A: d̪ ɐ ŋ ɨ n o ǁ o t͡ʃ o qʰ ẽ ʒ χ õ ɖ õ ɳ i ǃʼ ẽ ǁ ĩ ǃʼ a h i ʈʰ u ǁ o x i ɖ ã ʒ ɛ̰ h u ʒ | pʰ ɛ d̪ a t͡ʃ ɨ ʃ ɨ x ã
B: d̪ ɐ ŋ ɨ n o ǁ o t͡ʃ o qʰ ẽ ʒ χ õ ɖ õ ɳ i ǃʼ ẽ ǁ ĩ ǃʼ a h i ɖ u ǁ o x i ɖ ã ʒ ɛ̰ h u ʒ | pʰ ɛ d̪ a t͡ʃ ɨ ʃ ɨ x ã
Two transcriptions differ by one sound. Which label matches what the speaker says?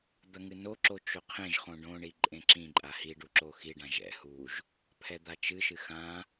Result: B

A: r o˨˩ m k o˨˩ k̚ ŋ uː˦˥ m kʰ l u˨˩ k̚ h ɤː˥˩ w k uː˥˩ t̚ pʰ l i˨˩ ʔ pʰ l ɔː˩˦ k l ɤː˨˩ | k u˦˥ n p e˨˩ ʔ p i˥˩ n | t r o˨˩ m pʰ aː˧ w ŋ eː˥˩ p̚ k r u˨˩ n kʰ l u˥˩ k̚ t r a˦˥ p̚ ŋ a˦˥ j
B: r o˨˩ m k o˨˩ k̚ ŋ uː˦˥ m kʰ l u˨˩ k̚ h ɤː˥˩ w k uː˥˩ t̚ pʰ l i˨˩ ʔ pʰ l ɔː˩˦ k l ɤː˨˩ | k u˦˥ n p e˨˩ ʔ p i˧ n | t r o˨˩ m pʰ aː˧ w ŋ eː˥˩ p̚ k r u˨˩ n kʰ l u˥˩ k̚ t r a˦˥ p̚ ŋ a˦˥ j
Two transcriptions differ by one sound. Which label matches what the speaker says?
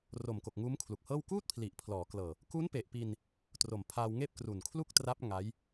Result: B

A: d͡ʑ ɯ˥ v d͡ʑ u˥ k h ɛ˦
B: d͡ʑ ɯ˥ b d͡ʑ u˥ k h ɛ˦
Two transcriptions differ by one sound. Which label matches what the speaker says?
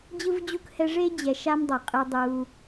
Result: A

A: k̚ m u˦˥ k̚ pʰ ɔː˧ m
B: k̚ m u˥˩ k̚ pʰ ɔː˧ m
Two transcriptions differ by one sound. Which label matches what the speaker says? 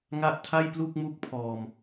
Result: A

